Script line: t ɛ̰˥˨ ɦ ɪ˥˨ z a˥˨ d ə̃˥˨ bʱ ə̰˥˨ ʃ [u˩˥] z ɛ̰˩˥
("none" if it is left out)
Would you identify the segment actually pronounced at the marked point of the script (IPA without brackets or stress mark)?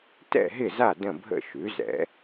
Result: ʉ˩˥